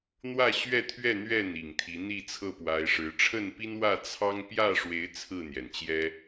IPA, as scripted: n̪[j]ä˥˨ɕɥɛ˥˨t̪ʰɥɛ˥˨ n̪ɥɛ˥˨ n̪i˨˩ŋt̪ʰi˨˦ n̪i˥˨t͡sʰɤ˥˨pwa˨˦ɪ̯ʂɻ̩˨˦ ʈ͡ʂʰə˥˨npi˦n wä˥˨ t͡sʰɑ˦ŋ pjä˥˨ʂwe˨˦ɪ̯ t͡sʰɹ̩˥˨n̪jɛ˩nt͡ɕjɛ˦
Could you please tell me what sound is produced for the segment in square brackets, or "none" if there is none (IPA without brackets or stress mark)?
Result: w